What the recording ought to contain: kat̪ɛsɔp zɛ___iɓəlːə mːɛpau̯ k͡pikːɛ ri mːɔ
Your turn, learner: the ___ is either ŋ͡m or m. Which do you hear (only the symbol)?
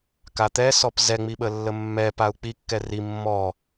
ŋ͡m